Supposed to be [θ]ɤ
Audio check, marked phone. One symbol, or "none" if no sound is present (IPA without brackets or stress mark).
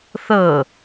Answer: θ